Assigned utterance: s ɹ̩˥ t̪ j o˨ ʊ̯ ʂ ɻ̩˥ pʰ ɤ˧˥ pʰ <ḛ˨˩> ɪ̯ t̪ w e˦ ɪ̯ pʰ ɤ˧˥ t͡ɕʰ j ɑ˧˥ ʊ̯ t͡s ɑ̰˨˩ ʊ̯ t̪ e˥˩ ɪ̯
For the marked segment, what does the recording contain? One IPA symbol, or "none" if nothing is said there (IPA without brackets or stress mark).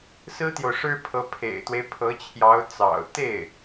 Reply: ḛ˨˩